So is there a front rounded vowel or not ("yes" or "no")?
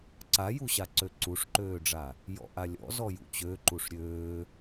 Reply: yes